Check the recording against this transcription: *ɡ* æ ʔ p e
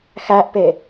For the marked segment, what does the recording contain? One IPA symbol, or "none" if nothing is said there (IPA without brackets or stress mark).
x